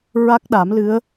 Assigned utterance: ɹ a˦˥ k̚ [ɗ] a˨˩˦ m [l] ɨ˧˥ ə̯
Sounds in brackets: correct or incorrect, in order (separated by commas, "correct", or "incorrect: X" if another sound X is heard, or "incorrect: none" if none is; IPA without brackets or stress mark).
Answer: correct, correct